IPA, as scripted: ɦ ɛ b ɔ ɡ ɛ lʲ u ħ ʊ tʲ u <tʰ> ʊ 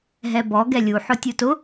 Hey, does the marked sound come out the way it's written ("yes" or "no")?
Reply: no